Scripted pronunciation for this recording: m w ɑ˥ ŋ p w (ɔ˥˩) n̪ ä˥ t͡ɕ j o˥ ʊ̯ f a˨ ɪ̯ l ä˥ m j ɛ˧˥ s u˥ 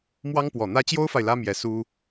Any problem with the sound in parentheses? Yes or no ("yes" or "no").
yes